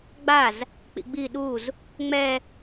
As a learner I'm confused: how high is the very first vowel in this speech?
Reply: low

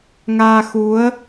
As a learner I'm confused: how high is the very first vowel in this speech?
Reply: low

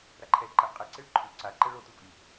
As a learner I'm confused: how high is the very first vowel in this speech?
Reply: low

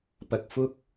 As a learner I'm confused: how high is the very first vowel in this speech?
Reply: low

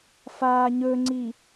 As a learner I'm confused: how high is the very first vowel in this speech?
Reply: low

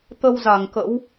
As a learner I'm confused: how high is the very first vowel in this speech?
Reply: mid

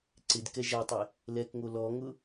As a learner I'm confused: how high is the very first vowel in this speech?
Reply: high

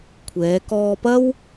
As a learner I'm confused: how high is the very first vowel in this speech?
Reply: mid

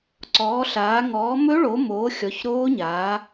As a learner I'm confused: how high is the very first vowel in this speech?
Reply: mid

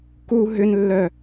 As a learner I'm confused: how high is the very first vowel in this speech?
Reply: high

